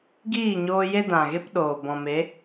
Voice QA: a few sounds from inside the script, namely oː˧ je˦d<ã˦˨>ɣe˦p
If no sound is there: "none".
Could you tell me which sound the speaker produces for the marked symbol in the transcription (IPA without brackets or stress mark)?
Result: ã˨